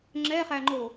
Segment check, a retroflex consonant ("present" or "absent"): absent